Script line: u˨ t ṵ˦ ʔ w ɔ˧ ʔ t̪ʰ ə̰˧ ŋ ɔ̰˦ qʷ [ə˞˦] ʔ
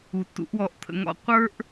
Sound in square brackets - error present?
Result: no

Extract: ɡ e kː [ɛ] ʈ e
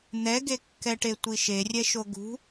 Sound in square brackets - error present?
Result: no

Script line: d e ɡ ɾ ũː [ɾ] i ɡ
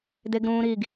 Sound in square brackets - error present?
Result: no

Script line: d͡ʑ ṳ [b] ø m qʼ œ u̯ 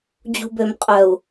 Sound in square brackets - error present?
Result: no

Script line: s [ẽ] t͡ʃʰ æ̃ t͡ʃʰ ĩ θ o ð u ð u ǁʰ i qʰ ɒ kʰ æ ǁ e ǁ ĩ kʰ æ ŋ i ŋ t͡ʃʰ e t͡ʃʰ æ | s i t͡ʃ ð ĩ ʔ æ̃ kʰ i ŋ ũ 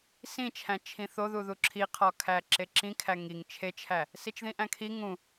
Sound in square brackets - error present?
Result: yes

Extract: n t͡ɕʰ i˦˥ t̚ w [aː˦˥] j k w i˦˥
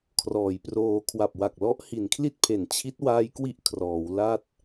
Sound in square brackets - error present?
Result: no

